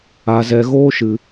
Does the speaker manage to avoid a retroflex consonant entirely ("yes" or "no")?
yes